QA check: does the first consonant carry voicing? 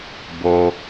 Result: yes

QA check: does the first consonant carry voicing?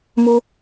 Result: yes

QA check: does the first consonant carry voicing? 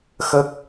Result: no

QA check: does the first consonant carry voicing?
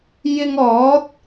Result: yes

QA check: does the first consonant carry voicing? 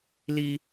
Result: yes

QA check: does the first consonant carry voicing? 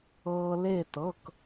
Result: yes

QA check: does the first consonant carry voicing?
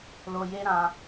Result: yes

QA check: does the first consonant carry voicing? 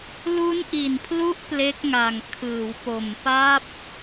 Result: yes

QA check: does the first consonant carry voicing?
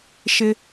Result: no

